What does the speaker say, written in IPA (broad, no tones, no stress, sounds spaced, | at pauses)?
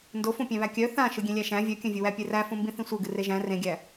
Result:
n d o f õ pʲ æ̃ β æ kʲ œ θ ã ʃ ɯ ɡʲ ẽ lʲ æ ʃ æ̃ vʲ œ kʲ œ̃ vʲ ɯ w æ pʲ e r æ f õ m b ĩ θ ĩ sʷ ɯ ɡ ɨ r e ʒ æ̃ r ẽ ɡʲ æ